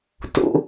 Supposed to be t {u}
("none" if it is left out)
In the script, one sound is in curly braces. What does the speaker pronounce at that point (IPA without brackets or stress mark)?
ṵ